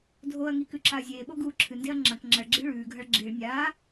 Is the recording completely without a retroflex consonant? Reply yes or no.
no